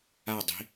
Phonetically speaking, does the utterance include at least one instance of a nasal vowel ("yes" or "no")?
no